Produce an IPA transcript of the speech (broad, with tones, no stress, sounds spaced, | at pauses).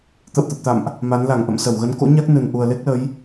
t̪ ə̰˧˨ w t̪ ə˨˩ p̚ t̪ a̰˧˨ m ʔ | m a˨˦ n l a˧˩ ŋ ʔ ə̰˧˨ m s ə˧˩ w ɣ ə˨˦ n k o̰˧˥ ɲ a˦˥ k̚ n ɨ˨˩ n ʔ u˨˩ ə̯ l e˦˥ k̚ l ə˨˦ j